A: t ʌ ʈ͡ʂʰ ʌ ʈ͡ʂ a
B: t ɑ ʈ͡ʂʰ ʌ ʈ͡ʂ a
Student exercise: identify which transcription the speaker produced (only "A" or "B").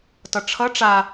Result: A